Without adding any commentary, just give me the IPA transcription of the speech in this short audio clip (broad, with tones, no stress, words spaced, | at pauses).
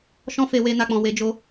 ʃɔ̃˧fe˨ we˧ na˧k͡pɔ̃˨we˧d͡ʒo˧